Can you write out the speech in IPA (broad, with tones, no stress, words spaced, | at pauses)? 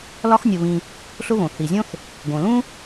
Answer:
lɒ˥xnʲo˨βĩ˨ | ɬʊ˥βõ˩ θi˩zʲõ˥θ | ɡõ˩lũ˥